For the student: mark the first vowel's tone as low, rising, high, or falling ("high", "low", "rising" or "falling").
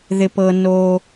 low